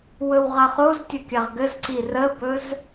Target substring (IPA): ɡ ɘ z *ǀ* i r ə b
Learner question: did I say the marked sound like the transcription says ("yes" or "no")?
yes